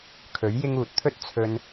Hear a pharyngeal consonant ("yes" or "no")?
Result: no